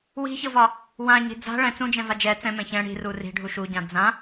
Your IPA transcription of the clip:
w i̤ ç ɤ v ɒ | w ã ɲ i̤ d͡z a̤ ɭ ɛ̃ t͡s ũ d͡ʒ ɛ̃ v a d͡ʒ ɛ t͡s ɛ̃ m ɛ̃ ç ɛ̃ ɽ i̤ r u r i̤ ɖʱ u ʃ u ɟ ã d͡z ã

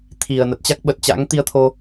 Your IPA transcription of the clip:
t̪ʰ i˨˩ ə̯ n ə˨˩ t̚ t͡ɕ a˦˥ k̚ ɓ ə˨˩ t̚ t͡ɕ a̰˧˥ ŋ t̪ i˧ ə̯ t̪ʰ o˧

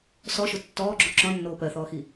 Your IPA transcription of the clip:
s ɔ ʃ ʊ tː ɔː ɡ͡ǁ o ǁ ɔ̃ nː oː p ɜ θ ɔː x i

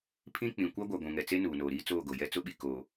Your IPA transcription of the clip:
pʰ ĩ˦ k͡p ĩ˨ kʷ a˦ ɡʷ a˨ ɡʷ ũ˨ ŋ ɛ˨ t͡s e˦ n uː˨ n oː˨ ɾ iː˦ t͡s oː˦˨ ɡ o˨ j ɛ˦ t͡s ʊ˦ ɓ i˨ k oː˨

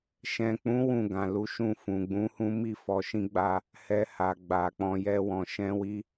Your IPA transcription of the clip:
ʃ ɛ̃˨ k͡p ũ˨˦ w ũ˦˨ ɡ ã˨ l u˨˦ ʃ ũ˦˨ f ũ˨ ɡ͡b ũ˨˦ h ũ˦ m i˦ f ɔ˧ ʃ ĩ˦ ɡ͡b a˦ | h ɛ˧ h a˨ ɡ͡b a˨ k͡p ɔ̃˧ j ɛ˦ w ɔ̃˧ ʃ ɛ̃˦ w i˦

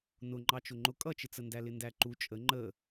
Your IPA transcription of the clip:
n ʊ ŋ͡ǃ ɑ t͡ʃ ʊ ŋ͡ǃ ʊ kʼ ʌ t͡ʃ ɪ t͡s ə n d æ l ɪ n d æ ǃ u t͡ʃʼ ə ŋ͡ǃ ə

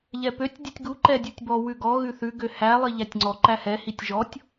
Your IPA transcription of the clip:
ʎ ɛ p ø tʲ dʲ ʉ tʲ ɡ u ǃ ɛ dʲ u tʲ b ɔ w ʉ ɡ ɔ ɣ ʉ θ ʉ ɡ ø h æ lˠ i ʎ æ tʲ ŋ͡ǀ ɔ ǃ æ h ɛ h i tʲ ʒ ɔ tʲ

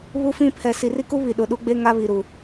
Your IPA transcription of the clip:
β u˦ f ĩ˦ pʰ ɛ˨ s i˨ r i˦ k u˦ β i˨ ɗ ʊ˨ ɗ u˦ ɡ͡b e˦ ŋ a˦ β i˨ ɾ u˨

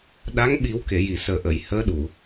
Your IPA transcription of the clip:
ɗ a˧˥ ŋ ɓ i˨˩˦ w k e˨˩˨ j i˨˩˨ s əː˨˩ ʔ ə˨˩˨ j h əː˧˥ ɗ u˨˩˨

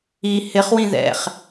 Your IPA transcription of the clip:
i h ɪ χ w ĩ ð ɛ̰ χ

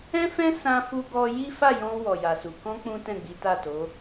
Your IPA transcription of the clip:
ɛ̃˦ f ɛ̃˦ s ã˧ f u˧ ɡ ɔ˧ j i˦ f a˦˨ j ɔ̃˧ w ɔ˨ j a˨ s u˨ k ɔ̃˧ k͡p ũ˦ t ɛ̃˦˨ ɡ͡b i˨˦ t a˦˨ t o˨˦

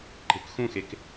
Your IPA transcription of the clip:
ǃ e̤ k x ũ x e k

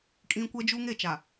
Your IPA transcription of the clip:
kʼ ĩ˦ kʷ ɛ˦ d͡ʒ u˦ ŋ e˦˨ t͡ʃ a˨

